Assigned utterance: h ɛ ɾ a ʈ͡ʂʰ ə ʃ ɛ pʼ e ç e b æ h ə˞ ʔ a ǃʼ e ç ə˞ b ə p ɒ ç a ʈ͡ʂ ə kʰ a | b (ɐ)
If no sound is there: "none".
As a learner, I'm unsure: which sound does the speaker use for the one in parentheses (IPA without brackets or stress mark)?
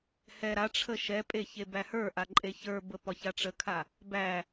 æ